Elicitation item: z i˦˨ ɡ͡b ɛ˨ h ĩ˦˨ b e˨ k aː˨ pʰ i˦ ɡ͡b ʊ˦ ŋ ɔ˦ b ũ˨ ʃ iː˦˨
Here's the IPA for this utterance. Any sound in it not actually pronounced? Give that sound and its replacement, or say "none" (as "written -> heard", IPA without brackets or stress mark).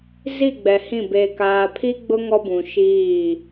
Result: none